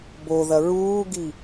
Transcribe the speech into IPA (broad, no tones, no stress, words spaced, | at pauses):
boðɐ ɹuːɡi